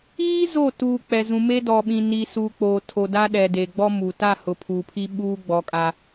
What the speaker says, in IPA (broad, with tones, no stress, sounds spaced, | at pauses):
iː˦ z o˦˨ t uː˨ k͡p ɛ˨ z ũ˨ m e˦ d ɔ˨ ɓ ĩ˨ n i˨ s u˨ k͡p oː˨ tʰ o˨ d a˦ ɗ ɛ˨ d e˨ ɡ͡b ɔ˦ m u˨ t a˦˨ h ʊ˨ pʰ uː˨ pʰ i˦ ɓ uː˦ ɡ͡b ɔ˨˦ kʼ a˦